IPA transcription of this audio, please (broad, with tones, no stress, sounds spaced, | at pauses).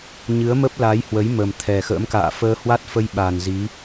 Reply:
ɲ ɨ˨˦ ə̯ m ə˦˥ p̚ l aː˨˦ j h w ə˨˦ j m ə˨˩ m t̪ʰ ɛ˨˩ x ə̰ː˧˥ m k a̰ː˧˨ f əː˧ h w a˦˥ t̚ f ə˧ j ɓ a˨˩ n z i˨˦